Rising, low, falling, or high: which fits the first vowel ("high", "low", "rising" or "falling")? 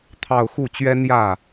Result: falling